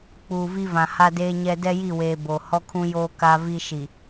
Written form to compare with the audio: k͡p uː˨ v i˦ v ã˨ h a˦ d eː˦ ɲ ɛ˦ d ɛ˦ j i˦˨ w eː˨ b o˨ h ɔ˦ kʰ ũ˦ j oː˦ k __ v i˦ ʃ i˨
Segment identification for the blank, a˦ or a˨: a˦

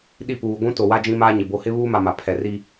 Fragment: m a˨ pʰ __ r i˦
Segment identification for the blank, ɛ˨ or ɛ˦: ɛ˨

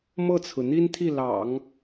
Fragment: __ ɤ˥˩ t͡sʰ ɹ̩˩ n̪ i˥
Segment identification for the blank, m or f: m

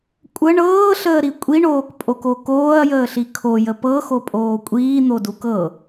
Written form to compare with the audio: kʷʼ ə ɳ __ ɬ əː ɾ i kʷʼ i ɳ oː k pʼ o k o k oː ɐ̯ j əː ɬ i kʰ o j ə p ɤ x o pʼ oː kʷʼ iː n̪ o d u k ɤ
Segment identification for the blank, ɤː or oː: ɤː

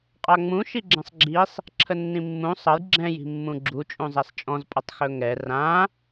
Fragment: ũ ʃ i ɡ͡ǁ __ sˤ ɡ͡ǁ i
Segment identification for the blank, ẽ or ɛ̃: ɛ̃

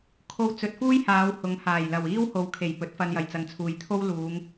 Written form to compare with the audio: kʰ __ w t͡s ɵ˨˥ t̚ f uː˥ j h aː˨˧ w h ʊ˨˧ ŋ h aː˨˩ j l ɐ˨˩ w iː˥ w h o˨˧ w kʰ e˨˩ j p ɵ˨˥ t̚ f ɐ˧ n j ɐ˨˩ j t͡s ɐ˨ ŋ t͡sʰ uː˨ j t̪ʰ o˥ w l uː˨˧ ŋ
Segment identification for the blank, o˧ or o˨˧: o˧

